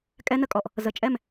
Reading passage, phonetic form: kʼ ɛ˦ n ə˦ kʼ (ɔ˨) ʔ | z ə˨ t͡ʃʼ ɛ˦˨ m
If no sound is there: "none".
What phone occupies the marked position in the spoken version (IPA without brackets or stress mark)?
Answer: ɔ˨